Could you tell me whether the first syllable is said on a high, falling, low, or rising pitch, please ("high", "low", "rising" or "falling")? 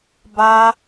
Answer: high